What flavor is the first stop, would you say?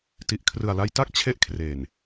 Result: plain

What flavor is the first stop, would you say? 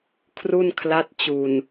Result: aspirated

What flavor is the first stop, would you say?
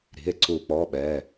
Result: click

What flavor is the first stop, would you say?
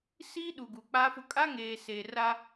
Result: implosive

